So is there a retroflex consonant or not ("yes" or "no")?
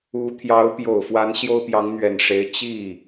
yes